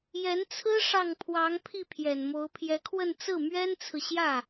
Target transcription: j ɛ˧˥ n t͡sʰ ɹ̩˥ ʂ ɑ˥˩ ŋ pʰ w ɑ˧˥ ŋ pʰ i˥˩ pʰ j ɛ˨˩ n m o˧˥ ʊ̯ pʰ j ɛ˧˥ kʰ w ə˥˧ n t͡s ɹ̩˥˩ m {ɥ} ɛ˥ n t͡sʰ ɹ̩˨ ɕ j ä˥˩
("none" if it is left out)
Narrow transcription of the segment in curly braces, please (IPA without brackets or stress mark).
ɥ